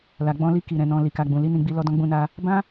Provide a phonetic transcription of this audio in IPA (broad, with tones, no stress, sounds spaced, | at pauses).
l a˨ ɡ͡b ɔ̃˧ l i˧ k i˨ ɾ ɛ̃˨ n ɔ̃˨ l i˨ k a˨ ɡ͡b ũ˨ l i˨˦ n ĩ˧ ɡ͡b i˧ l ɔ˧ d ɔ̃˧ ɡ͡b ũ˧ n a˧ | b ã˦